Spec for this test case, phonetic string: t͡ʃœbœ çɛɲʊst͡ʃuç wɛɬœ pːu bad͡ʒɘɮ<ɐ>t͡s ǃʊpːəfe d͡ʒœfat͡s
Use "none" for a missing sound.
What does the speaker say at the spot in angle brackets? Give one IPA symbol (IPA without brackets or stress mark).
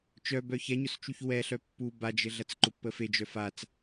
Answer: ɐ